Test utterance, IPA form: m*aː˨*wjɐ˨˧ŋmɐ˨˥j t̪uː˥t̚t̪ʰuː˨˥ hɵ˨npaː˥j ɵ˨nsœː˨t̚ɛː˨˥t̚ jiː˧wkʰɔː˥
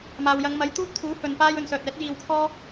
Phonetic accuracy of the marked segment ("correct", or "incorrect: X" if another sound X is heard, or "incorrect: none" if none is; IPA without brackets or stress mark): correct